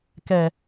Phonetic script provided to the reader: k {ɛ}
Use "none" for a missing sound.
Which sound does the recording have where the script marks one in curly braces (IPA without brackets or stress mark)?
ɛ